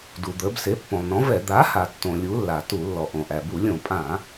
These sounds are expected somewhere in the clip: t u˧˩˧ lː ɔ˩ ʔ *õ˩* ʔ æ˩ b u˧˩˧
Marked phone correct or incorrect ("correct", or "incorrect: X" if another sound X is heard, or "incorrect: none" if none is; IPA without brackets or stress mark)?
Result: correct